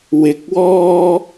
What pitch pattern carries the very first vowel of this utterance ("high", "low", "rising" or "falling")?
rising